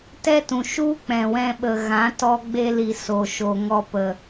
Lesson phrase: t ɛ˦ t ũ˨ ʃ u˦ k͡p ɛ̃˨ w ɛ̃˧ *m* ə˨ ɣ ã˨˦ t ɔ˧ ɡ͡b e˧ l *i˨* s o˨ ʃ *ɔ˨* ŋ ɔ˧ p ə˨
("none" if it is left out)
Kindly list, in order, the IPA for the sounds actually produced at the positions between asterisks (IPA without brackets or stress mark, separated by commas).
ɓ, i˨, o˨